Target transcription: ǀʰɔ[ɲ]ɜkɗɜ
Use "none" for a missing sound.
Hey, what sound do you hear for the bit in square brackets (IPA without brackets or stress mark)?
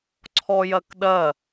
j